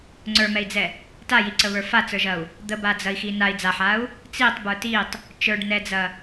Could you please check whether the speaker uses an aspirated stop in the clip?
no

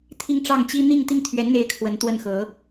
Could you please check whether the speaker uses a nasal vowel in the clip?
no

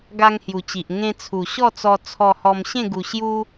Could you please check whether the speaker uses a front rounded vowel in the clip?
no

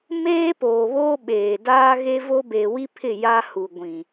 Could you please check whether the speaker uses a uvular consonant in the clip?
no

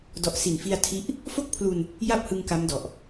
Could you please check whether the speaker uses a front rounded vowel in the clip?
no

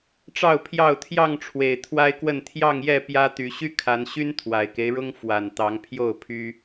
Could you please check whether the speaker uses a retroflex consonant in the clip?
yes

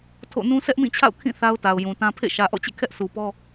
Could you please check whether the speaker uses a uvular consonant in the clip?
no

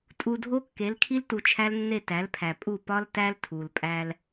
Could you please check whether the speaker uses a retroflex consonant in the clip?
no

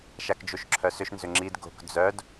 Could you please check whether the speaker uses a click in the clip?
yes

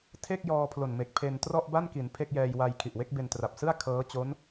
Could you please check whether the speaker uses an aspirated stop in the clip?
yes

